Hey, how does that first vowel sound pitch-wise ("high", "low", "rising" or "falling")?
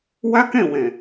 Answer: high